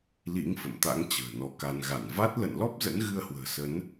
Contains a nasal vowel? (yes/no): no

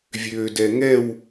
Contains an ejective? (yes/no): no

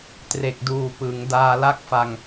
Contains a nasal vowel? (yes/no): no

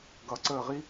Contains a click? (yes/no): yes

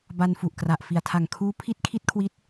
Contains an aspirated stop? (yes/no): yes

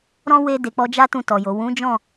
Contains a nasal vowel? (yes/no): yes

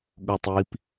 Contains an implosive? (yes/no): yes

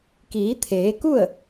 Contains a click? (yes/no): no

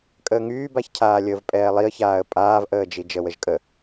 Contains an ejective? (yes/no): yes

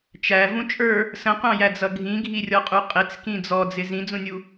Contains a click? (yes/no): no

